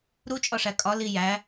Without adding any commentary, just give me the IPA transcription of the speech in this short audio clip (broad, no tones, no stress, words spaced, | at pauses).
ɾut͡ʃʼɒʂæ kʼɒ li jæ